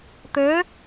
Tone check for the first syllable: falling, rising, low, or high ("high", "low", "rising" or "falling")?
rising